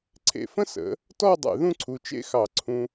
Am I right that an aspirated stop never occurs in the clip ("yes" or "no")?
no